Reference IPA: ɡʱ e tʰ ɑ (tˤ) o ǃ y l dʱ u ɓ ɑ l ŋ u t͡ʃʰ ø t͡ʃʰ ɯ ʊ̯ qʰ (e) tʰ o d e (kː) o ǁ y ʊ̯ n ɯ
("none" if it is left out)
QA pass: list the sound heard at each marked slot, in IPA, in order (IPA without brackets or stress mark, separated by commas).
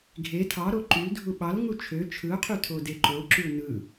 ɾ, y, ǃ